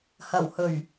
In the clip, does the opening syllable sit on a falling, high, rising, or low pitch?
low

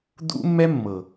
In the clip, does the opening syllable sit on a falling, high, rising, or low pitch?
high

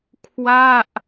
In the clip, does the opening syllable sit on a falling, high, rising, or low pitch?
falling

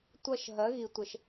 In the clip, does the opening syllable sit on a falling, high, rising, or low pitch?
falling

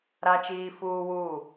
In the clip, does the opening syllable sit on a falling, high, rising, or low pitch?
high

